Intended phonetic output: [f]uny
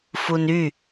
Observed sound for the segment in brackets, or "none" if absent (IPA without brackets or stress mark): f